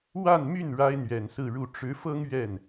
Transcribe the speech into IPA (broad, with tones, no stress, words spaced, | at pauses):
wa˥˧nmy˥˩n ɻa˥ɪ̯n̪ɥɛ˨˩nsɹ̩˥˧ɻu˥˩ ʈ͡ʂɻ̩˧˥fɤ˥ŋ ɥɛ˥˩n